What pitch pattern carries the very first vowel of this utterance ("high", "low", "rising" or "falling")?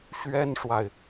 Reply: high